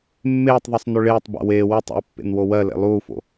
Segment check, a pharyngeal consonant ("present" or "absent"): absent